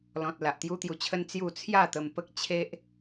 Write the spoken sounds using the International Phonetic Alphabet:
lɔ̃˨t̚ la˨ʔt̪ju˦t̪ju˧t͡ɕʰə˦n t͡sju˥˧ t͡sʰja˥˧t̪ə˧mpə˦k̚ t͡ɕʰe˦ʔ

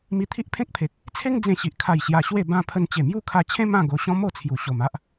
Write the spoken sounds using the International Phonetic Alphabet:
mi˧t̪ʰi˦ʔpʰẽ˦k̚pʰe˨k̚ | t͡sʰe˦ŋ d͡zẽ˧ɕi˨ʔ kʰa˨˩j ɕja˧ɕwe˥˧bã˦ pʰə˧n t͡ɕe˨˩mju˥˧kʰa˧t͡ɕʰẽ˦ mã˥˧ ɡo˧ɕɔ̃˦mo˥˧t͡sʰju˨˩ ɕo˨˩ma˦ʔ

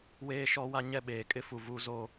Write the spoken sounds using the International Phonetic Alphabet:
weː˦ʃɔ˦wa˦ ɲɛ˦˨ɓeː˨kʼɪ˦fu˨ vu˦zo˦

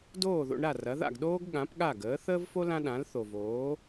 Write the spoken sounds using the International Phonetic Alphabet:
doː˥˩ðo̰˧ɳɾa˥˩ rɐ˩˥ða̰˥˩ɡ ɗoː˥ɡ ɠã˩˥pɠa˥˩ɡəː˩˥ θəː˥vfo˥ lã˥ɗã˩˥l θo˩voː˩˥

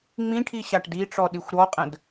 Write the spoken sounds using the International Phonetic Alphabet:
ŋ͡mĩʈʰi ɕaʈdiʈ͡ʂɔ ɗixʷɾɔqʼə̃d

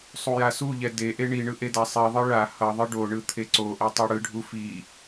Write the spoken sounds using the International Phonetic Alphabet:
sˤujasuʎɛ deʔe ɳiɳɯ ʔedasˤiðˤɯ ɭa hʌðˤɯ ɖoɳɯ t̪ʰeǀoʔɛ tˤoɽɯɖʱu fi

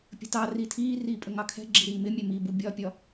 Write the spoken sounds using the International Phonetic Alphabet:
pʲə̤tɑri tʰiːriː pʼəŋɑkʰɛ̤ɡ͡ǁi ɾiːmɪmʲɛ mibu bʲɒpʲɒ

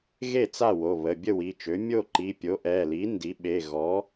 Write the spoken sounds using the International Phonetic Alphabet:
ɣe˥˩t͡sa˥˩wo˩˧˩ βə˩˧˩bʲə˥˩ wi˩˧˩t͡ʃø˩˥ mʲo˥˩ǃi˩˧˩pʲo˩˥ ʔɛ˩˧˩li˩˥ ndi˩˥ɓe˩˧˩ ɣɔ˩˥

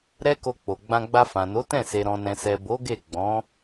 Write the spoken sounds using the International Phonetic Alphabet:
ɾɛ˦ko˧k͡po˨ɡ͡bã˧ ɡ͡ba˧fã˨no˨˦tɛ̃˦˨ se˨ɾɔ̃˨nɛ̃˨sɛ˨ bo˨˦ɡe˦˨ ɡ͡bɔ̃˨˦

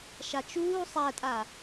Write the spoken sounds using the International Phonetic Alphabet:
ʃat͡ʃuː sˤætʼa

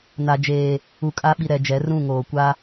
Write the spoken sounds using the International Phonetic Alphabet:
na˨d͡ʒeː˨ | u˨kʼa˦ɓi˨ɾɛ˨ d͡ʒɛ˨˦rũ˦˨ŋoː˨ kʷa˦

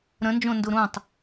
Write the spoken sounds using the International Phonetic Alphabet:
ɾə̃nd͡ʒõndu ɾũtˤ

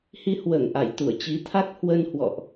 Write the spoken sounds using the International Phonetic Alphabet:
hi˧hwəː˧˩ŋʔa˧˩jt̪u˧˩ə̯ t͡ɕi˨˦t̪ʰa˦˥k̚ hwə˧nhwɔ̰˧˨ʔ

